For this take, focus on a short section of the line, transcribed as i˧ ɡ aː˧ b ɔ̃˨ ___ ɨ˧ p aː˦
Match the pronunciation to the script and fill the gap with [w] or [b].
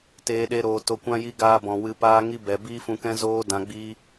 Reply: w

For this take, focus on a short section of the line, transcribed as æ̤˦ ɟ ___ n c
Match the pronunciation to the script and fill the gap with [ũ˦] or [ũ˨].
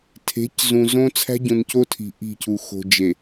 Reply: ũ˨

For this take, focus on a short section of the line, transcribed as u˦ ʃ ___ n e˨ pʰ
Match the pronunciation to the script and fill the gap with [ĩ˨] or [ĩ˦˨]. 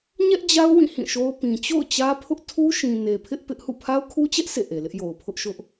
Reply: ĩ˨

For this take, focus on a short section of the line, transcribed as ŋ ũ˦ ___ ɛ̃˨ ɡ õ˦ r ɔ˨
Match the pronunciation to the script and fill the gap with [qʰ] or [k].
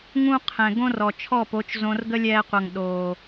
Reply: qʰ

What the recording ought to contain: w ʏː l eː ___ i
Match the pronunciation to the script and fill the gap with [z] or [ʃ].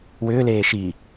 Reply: ʃ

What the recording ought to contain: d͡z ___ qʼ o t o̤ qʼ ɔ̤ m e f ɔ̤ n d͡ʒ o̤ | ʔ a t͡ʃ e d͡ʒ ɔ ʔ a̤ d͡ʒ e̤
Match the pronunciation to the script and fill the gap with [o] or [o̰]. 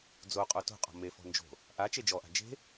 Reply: o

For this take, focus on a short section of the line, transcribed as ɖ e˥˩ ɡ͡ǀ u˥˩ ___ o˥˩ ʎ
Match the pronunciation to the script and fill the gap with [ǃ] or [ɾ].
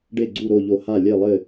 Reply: ɾ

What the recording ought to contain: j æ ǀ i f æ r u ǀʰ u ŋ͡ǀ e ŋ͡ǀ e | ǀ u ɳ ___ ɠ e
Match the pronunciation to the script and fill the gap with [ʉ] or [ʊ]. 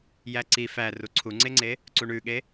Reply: ʉ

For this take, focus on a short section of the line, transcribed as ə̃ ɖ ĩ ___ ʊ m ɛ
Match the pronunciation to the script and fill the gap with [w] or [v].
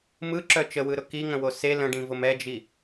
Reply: v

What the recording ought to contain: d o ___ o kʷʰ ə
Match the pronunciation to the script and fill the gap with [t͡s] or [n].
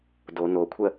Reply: n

